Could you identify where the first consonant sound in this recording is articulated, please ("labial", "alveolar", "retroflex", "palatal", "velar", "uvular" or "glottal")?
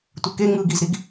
alveolar